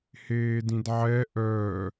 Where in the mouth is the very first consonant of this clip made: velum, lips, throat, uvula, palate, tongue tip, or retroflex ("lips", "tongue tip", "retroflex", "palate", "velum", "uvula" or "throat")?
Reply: throat